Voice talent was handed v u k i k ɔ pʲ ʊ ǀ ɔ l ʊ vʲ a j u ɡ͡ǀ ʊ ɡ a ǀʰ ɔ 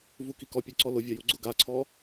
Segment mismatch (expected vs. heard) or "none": none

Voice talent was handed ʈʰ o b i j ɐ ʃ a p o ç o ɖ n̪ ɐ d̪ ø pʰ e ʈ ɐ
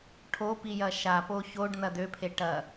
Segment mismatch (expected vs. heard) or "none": b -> p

